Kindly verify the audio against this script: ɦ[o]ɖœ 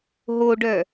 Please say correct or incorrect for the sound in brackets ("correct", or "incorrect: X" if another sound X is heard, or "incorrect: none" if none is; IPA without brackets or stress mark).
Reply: correct